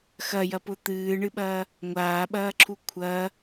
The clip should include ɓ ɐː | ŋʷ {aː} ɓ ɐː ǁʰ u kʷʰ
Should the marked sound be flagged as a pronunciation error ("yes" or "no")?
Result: no